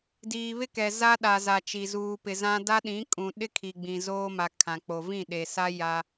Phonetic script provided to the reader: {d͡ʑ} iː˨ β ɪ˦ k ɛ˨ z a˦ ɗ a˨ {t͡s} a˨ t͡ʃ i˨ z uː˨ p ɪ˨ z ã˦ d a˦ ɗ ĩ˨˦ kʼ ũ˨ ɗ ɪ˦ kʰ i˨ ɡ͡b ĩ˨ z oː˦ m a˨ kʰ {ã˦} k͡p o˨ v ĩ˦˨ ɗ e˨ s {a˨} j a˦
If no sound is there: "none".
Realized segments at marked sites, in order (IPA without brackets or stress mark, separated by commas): d, z, ã˨, a˦